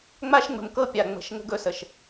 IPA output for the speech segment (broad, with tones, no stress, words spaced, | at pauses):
ŋ͡ma˦ʃŋ͡mə̤˨mkɤ˦ pʲa˨ŋ͡mə̤˨˦ʃ ŋə̤˦ɡɵ˦sə˨ʃ